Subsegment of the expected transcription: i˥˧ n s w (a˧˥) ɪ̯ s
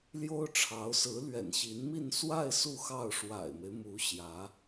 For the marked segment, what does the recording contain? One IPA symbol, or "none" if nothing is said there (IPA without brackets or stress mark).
a˥˧